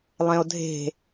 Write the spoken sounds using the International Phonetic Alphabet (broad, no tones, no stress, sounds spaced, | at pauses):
lˠ ẽ o̯ dʱ e̤